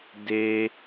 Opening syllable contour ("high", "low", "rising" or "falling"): high